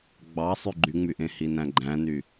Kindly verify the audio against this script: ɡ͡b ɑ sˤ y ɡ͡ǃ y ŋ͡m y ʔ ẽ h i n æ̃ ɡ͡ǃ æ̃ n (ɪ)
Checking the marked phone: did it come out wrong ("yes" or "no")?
yes